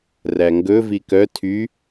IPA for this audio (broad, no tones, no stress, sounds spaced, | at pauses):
r æ ŋ ɡ ɵ v i k œ tʰ y